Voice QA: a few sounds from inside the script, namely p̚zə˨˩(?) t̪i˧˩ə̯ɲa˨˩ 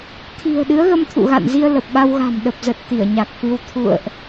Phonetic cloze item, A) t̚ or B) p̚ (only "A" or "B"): A